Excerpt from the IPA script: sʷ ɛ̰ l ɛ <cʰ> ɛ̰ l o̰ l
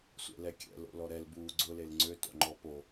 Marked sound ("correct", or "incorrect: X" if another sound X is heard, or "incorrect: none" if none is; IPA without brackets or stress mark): incorrect: kʲ